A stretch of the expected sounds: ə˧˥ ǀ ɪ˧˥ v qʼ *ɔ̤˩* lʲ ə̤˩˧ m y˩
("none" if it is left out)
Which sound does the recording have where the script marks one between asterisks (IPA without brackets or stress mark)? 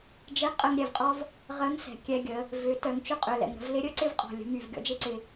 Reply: ɔ̤˩